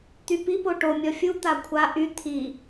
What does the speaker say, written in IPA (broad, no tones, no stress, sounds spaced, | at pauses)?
t̪ y p i p o ʈ o mʲ ɔ fʲ u t̪ a kʷʰ a ʔ y t̪ʰ i